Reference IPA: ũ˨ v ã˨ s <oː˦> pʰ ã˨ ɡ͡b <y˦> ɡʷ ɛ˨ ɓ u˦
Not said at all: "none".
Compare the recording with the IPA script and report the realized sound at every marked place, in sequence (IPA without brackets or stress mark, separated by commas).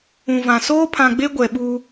oː˦, e˦